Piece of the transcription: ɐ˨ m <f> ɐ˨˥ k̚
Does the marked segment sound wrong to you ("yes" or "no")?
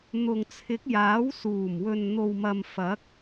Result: no